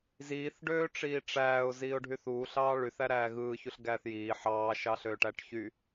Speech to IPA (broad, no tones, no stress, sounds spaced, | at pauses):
z iː θ ɖ øː ʈ͡ʂ iː ʈ͡ʂ æː ʊ̯ z iː ʊ̯ ɖʱ y θ uː ɬ ɑː ɭ y θ æ ɾ æː ɣ ɯː ç u ɬ ɡ æː θ j iː ħ ɑː ʃ ɑ ɬ øː ʈ æ ʈ ç y